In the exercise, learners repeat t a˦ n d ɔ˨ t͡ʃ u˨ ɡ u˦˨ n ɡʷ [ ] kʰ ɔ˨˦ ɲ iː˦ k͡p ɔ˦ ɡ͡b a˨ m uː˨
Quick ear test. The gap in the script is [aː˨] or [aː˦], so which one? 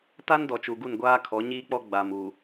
aː˦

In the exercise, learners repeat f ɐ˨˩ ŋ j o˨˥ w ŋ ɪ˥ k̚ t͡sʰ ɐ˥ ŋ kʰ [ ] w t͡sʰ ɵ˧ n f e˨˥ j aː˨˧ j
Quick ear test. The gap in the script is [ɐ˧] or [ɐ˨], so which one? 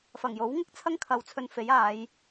ɐ˨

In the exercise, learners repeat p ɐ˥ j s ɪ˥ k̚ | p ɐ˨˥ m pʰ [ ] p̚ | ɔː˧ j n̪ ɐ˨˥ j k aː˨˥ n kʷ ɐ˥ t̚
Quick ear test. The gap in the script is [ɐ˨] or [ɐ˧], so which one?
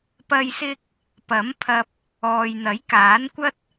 ɐ˧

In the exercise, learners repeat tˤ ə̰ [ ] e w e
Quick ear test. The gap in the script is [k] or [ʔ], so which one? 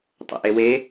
ʔ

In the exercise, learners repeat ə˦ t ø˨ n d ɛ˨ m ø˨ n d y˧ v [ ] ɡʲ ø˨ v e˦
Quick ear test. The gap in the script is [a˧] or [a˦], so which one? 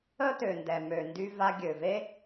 a˧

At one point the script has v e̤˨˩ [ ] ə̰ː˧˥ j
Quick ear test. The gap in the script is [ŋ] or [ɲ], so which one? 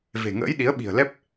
ŋ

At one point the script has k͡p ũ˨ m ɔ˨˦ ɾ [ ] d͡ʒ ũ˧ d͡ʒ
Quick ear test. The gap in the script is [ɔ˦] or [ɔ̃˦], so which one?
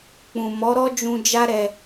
ɔ˦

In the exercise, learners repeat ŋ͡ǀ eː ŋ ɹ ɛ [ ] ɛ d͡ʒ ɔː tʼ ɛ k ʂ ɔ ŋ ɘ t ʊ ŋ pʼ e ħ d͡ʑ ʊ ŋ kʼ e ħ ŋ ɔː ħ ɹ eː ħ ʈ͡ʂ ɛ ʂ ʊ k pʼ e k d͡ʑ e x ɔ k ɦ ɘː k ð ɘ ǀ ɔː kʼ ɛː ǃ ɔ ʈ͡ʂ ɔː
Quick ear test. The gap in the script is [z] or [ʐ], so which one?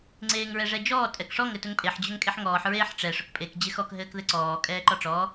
ʐ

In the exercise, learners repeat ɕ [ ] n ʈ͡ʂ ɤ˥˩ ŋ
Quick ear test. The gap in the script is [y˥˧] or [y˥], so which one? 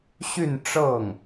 y˥˧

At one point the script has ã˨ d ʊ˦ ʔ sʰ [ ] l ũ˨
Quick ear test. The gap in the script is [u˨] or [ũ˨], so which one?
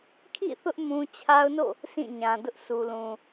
u˨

